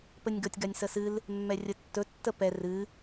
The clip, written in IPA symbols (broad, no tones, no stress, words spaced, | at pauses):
pənʲɡʌtʲ ɡanʲsəsɨl | mːɛrʲətːɵ tːəpɛr ɨ